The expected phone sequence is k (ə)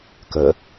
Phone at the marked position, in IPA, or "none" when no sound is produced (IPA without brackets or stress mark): ə